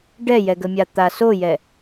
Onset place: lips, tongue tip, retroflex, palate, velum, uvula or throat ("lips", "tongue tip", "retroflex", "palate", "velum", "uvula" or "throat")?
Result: retroflex